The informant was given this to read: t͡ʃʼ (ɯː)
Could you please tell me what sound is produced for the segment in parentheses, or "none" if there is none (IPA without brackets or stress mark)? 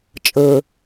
ɯ